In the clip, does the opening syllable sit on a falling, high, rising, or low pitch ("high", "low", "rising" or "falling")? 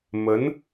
rising